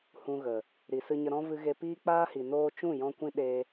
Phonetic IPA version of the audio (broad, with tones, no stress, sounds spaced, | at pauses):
h ũ˧ ɣ ə˨ | ɾ i˨ s ɨ˧ ɲ ə˧ ɾ ɔ̃˦ v ɨ˧ ɣ e˧ p iː˦ k͡p aː˦ h i˨ n oː˧ t͡ʃ ũ˦˨ j ɔ̃˧ kʷ ĩ˦ ɗ e˧